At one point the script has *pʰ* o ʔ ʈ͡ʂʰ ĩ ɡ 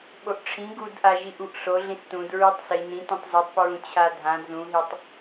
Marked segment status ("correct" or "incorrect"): incorrect